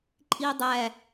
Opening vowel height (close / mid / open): close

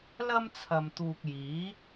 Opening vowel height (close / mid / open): open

